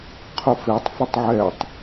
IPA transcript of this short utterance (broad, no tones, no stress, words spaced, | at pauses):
qʰʊfetˤ fɪtˤʕɛtˤ